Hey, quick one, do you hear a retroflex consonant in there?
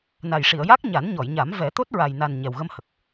yes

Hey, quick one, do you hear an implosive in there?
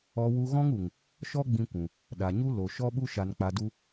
yes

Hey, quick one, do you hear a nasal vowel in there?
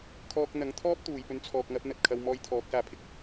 no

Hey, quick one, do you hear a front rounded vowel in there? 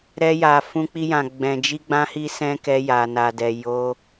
no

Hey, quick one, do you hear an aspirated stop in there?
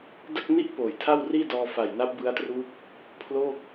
yes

